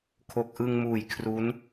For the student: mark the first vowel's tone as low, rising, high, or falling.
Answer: low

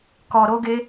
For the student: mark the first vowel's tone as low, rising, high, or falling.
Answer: low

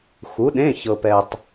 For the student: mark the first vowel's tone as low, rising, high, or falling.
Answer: rising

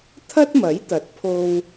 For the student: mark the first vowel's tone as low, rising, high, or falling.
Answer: high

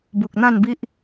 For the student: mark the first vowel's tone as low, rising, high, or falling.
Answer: low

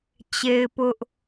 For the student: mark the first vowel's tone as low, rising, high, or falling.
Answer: high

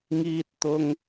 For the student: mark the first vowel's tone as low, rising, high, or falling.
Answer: high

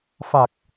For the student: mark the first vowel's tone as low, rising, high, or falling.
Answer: low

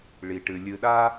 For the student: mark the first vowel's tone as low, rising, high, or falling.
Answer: low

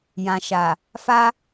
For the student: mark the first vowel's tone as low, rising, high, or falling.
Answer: low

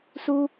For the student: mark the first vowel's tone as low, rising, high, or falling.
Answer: high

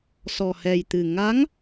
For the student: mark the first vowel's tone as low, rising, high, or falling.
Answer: low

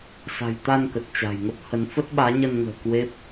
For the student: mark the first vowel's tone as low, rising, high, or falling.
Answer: low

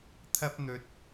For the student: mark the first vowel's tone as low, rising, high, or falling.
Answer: high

